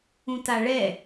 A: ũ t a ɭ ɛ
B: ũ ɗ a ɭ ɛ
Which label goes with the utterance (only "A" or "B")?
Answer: A